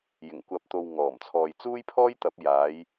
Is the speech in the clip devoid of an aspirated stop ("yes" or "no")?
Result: no